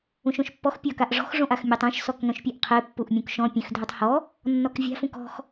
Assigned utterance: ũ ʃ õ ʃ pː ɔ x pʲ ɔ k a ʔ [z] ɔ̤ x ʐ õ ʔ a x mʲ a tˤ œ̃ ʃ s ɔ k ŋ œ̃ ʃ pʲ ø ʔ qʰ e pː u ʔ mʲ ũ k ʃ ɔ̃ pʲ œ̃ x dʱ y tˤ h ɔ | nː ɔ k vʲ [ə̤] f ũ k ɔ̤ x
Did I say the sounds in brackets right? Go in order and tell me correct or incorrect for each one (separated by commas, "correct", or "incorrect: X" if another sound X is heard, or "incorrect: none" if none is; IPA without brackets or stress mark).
incorrect: ʐ, incorrect: a̤